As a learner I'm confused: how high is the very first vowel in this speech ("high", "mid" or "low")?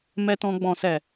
mid